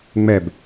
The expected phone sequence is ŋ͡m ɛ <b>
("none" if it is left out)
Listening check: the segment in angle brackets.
b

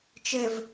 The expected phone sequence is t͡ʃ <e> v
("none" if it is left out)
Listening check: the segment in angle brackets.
ɘ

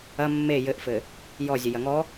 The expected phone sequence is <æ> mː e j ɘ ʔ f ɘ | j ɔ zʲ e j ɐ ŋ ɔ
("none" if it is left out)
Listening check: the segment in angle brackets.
ɐ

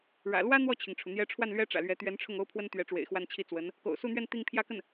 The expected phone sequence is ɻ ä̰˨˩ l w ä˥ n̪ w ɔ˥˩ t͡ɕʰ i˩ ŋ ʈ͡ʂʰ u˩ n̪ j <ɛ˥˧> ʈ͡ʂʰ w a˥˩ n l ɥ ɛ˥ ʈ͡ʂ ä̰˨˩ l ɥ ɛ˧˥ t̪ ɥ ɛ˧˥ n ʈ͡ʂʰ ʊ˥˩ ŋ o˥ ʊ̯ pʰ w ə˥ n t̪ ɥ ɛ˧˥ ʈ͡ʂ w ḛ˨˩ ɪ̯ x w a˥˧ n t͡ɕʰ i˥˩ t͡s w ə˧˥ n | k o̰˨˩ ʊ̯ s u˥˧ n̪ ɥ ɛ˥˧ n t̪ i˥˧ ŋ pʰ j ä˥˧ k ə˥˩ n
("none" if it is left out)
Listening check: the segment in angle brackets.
ɛ˧˥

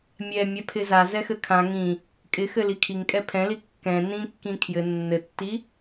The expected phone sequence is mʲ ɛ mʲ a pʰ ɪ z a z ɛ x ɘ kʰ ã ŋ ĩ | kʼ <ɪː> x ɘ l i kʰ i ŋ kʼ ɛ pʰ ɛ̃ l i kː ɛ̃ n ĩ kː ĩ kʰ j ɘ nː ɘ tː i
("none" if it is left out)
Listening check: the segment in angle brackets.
ɪ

